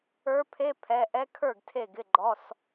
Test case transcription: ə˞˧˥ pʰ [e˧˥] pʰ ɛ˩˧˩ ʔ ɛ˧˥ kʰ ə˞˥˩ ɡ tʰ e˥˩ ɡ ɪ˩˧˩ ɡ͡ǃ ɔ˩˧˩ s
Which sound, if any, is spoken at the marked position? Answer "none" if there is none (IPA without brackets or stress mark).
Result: e˧˥˧